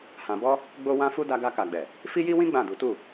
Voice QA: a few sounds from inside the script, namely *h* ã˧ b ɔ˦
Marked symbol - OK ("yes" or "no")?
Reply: yes